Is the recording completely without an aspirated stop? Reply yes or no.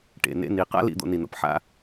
yes